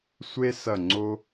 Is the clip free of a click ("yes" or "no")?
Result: no